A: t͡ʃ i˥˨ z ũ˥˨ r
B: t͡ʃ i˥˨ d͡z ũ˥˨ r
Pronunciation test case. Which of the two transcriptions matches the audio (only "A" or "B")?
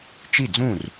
B